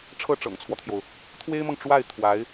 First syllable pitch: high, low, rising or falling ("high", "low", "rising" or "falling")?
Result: falling